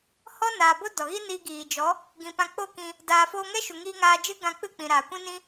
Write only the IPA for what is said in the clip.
h ɔ˦ n aː˨ b o˦ d ɔ˨ ɣ i˦ n iː˧ ɡ iː˨ d͡ʒ ɔ˨˦ | ɡ ĩ˨ p ã˧ k͡p o˦˨ k ĩ˧ | d aː˨ f oː˧ ŋ ɛ˦ ʃ u˨ ŋ iː˧ ŋ aː˧ d͡ʒ ɨ˦ ɡ ã˧ k͡p ɨ˦˨ k͡p ĩ˨ ɾ aː˨ kʷ ĩ˦ n ĩ˦

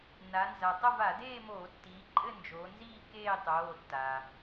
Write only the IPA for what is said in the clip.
n a˩˧ n z a˩ tˤ ə˥˧ v a˧˩˧ d eː˥˧ m oː˧˩˧ tː i˩˧ ǃʼ ɘ˥˧ n d͡ʒ oː˩˧ n z iː˥˧ k eː˥˧ tˤ oː˩˧˩ tː a˩

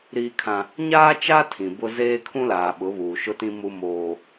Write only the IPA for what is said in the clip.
ɾ iː˦ kʰ ã˦ | ɲ aː˦ t͡ʃ a˦ tʰ ĩ˨ b ʊ˦ z eː˦ kʰ ũ˦ l aː˨ ɓ ʊ˨˦ β uː˨ ʃ ʊ˦ t ĩ˦ m u˦ m oː˦

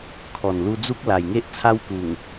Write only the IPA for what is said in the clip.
kʰ ɔ˨˩ n l u˧ d͡z u˦ k̚ l a˨˩ j ŋ e˦ ʔ t͡sʰ a˦ w k u˨˩ ŋ

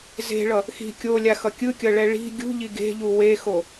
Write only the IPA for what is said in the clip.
z e̤ ɭ ʌ | x i̤ kʲ o lʲ a x ʌ kʲ ɯ kʲ ʌ ɭ ɛ ɭ i̤ ɡʲ ṳ ʎ i ɡ e̤ ʎ u w e x o

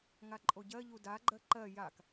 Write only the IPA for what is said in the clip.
ŋ a ǃʼ o ɟ ɜ ʎ u d a ɡ͡ǃ ɜ ǃ ɜ j a k

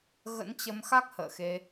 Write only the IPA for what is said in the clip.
ɣ ə̰˧˥ n t͡ɕ ə˧ m x a˦˥ k̚ h ə̰ː˧˨ x e˧

